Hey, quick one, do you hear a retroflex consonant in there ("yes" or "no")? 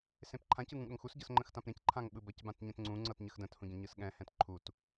no